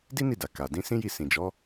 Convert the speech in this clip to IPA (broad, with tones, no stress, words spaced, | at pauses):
di˦ni˦˨da˨ ka˨ dĩ˧sĩ˦ji˦˨ sĩ˨d͡ʒɔ˨˦